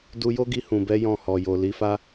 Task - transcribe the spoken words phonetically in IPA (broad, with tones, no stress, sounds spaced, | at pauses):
d u˧ j o˦ ɡ i˧ h ũ˨ b ɛ˨˦ j ɔ̃˦˨ h ɔ˨ j o˨ l i˨˦ f a˦